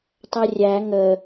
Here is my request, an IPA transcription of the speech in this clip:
tˤ ɐ rʲ æ ŋ ə

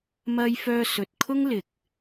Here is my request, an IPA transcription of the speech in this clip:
m ɐ˥ j f œː˥ s ɵ˧ t̚ kʰ ʊ˥ ŋ l ɪ˨ k̚

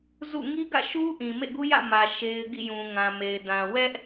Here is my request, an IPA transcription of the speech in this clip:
z ṵ˦˨ ŋ i˦ ɡ ä̰˦˨ ʃ u˦ ʔ ĩ˨ m ḛ˦˨ ɡ u˦ j ä̰˦˨ m ä˨ ʃ e˦ ɪ̯ ɡ ḭ˦˨ j ũ˨ ŋ ã˨ m e˨ ɪ̯ d ã˨ w ɛ˦ ʔ

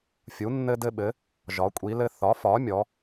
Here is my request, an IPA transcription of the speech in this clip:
fʲ u˩˥ nː ɘ˦ d ɘ˦ ɓ ɘ˩˥ | ʒ ɒ˩˥ kʷʼ i˩˥ l ɘ˦ θ ɒ˩˥ f ɒ˩˥ mʲ ɔ˩˥

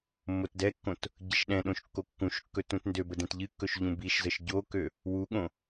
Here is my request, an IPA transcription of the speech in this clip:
mː o t d ɛ kː õ t | ɟ ə ʃ ɗ ɛ̃ ɗ õ ʃ kː o kː ũ ʃ kː ɵ t ũ t n d ø b ə d ɛ̃ t ʎ ɨ kː ɵ ʃ ʎ ũ b i ʃ z ə ʃ ɟ o k ø | w u ɠ õ

